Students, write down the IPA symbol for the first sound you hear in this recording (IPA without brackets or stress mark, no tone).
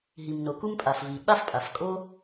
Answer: ɦ